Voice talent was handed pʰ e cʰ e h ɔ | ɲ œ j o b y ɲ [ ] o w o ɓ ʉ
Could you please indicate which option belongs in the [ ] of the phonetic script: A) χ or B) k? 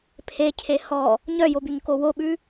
B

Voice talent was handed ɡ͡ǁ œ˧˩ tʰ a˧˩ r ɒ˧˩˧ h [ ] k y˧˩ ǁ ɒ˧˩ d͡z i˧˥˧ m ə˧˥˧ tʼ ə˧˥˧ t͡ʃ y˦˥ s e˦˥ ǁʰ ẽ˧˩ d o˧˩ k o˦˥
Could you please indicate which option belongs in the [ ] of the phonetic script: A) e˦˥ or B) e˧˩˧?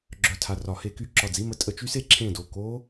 B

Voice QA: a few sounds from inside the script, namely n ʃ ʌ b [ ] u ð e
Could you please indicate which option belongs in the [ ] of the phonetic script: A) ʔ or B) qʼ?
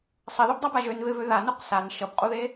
B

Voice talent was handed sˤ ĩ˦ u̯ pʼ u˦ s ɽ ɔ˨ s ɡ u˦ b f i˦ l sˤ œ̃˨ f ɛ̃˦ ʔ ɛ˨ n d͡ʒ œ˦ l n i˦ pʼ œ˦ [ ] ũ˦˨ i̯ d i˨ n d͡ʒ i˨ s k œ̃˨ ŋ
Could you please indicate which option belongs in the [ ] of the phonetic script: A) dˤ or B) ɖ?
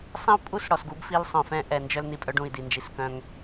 B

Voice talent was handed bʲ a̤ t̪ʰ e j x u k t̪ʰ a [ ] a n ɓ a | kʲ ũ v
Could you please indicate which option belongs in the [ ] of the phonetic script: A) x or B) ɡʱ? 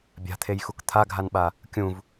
B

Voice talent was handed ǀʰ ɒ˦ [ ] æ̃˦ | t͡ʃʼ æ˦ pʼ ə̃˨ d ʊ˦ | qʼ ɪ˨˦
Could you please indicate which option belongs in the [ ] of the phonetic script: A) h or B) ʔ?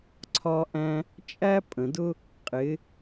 B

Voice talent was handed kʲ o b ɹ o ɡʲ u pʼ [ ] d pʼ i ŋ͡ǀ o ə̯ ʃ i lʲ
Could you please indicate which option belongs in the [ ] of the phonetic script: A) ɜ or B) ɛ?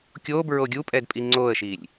B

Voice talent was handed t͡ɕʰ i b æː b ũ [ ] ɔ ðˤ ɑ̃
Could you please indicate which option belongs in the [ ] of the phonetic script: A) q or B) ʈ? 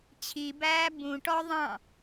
B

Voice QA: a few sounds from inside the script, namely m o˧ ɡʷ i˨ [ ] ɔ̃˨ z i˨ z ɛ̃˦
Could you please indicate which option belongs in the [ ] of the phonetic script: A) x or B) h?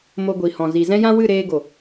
B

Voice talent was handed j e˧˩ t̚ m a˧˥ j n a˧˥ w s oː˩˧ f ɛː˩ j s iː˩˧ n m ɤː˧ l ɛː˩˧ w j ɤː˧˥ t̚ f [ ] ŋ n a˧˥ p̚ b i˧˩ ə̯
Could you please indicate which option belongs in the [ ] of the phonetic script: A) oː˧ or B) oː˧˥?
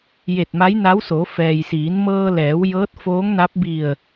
B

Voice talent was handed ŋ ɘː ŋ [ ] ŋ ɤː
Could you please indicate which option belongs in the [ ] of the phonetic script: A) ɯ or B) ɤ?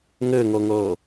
B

